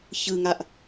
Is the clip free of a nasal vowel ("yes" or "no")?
yes